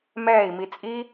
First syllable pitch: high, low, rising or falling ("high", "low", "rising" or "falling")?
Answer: falling